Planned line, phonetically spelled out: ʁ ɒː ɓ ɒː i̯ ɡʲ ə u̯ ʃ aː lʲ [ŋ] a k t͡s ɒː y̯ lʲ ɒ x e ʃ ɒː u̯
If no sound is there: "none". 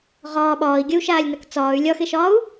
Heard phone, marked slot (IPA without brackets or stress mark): n